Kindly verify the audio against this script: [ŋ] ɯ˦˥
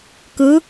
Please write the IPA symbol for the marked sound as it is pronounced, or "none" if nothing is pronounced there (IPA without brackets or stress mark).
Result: k